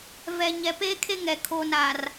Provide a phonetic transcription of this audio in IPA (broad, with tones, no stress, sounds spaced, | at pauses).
v ɛ˨ ɲ ɛ˨ p eː˦ kʰ e˦ ŋ ɛ˨ kʰ oː˨ n aː˨ r